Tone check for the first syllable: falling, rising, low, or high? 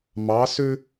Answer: rising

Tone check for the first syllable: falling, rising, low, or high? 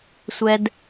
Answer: low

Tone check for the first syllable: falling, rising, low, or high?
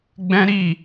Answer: high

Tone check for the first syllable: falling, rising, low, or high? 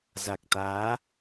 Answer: low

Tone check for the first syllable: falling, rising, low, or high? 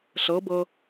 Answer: rising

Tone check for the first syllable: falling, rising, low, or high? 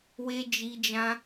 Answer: high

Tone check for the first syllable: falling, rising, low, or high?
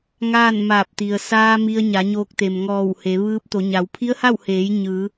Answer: falling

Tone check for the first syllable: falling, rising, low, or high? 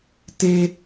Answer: high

